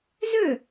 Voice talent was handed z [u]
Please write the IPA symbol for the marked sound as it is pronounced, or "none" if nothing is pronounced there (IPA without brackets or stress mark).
ø